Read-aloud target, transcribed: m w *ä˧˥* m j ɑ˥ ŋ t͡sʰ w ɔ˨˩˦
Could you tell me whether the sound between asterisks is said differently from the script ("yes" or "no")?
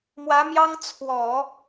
no